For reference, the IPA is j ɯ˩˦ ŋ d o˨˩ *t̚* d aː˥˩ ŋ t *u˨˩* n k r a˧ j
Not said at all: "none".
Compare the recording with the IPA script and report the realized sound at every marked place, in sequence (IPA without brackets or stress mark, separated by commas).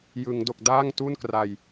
k̚, u˥˩